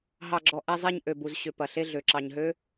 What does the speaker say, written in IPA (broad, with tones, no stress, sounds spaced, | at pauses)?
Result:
ɦ ɑ˨ ɡ͡ǁ ɔ˨ ʔ ɛ˨ zˤ e˨ ɲ ʔ ø˨ b u˨ z ɕ ʏ˨ p ɐ˨ ɬ e˦ ɮ ø˨ ǁ ɑ˨ ɲ ɦ ø˦